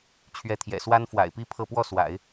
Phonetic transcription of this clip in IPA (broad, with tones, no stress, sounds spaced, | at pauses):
t͡ɕʰ ɥ ɛ˧˥ t̪ʰ j ɛ̰˨˩ s w a˥ n f w a̰˨˩ ɪ̯ p i˥ pʰ ɤ˥˧ p w ɔ˥˩ s w a̰˨˩˦ ɪ̯